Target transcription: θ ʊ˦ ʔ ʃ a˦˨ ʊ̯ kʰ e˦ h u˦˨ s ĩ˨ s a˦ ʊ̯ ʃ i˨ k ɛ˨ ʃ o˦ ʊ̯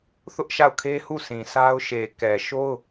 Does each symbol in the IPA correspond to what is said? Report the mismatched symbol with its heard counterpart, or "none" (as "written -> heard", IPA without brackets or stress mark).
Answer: i˨ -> e˨